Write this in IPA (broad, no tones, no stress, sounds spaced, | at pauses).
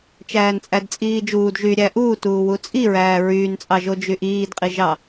t͡ʃ æː n t͡sʼ æ d t͡sʼ iː d͡ʒ uː d ʒ y ɾʲ æ ʔ uː t uː w u t͡sʼ i ɹ æː ɹ yː n t͡sʼ ɑ ʒ o d͡ʒ y ʔ iː d qʼ i ʒ ɑ